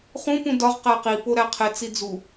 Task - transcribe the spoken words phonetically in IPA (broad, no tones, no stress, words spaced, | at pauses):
χũ pũdɒʁ qæqi poɾæqʰe t͡sid͡zu